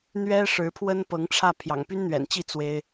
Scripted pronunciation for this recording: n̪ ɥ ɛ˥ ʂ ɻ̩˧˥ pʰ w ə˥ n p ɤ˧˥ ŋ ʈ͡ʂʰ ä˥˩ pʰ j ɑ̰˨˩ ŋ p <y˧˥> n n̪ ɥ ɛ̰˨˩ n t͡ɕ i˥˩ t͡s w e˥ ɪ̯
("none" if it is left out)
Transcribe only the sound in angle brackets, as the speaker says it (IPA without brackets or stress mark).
y˥